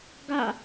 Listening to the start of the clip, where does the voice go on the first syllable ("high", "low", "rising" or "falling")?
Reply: falling